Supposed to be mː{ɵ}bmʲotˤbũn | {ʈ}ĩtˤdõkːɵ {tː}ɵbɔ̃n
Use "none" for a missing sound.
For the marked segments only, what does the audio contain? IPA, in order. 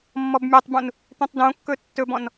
ɔ, t̪, tː

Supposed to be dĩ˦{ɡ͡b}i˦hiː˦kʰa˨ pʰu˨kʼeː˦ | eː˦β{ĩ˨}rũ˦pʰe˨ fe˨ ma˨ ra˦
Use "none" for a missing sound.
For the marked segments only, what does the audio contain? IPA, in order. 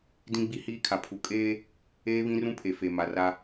ɡ͡b, ĩ˦

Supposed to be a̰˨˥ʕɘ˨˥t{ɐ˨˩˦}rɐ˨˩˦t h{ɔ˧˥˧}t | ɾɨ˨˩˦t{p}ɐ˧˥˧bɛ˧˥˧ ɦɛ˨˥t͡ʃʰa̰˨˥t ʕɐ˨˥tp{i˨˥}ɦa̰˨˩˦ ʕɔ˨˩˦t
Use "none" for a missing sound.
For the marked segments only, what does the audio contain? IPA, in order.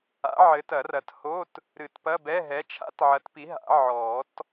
ɐ˨˩˦, o˧˥˧, p, i˨˥

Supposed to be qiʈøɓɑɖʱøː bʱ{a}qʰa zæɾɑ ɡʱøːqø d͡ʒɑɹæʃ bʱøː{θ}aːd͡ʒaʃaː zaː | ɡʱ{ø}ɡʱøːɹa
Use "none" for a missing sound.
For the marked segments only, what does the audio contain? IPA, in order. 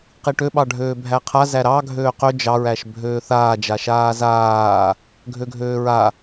æ, θ, ø

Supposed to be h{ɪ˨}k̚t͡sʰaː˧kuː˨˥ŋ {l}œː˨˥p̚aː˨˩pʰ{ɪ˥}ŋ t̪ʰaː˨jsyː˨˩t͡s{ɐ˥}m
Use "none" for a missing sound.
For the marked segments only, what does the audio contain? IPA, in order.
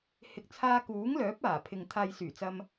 ɪ˨, l, ɪ˨, ɐ˧

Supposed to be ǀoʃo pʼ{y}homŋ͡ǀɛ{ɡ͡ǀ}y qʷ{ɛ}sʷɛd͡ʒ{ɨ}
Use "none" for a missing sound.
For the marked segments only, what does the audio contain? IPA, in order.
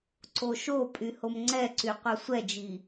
y, ǀ, œ, i

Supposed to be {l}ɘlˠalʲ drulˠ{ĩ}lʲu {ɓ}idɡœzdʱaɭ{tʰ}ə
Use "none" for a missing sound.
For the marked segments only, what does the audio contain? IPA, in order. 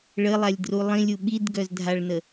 ɭ, ĩ, ɓ, n

